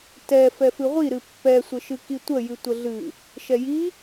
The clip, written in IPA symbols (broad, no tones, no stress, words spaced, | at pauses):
tɛ fɛfɨʁʷiɾɨ pːɛsʷəʃɨ kitʷəjɨ tʷəɮɨ | ʃɛji